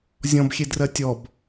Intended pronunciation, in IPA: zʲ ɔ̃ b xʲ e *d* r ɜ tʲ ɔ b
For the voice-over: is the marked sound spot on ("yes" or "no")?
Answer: yes